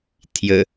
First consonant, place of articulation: alveolar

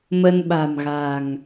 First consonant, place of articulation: labial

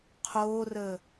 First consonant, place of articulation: uvular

